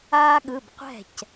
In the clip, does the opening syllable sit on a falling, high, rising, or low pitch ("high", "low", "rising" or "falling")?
high